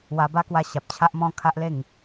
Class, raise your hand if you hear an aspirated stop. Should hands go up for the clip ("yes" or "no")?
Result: yes